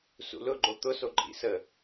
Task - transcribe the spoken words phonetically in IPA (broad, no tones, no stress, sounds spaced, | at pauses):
s ṵ l ʊ ɡ͡ǃ o t̪ ʊ s o ǃʼ ḭ s ə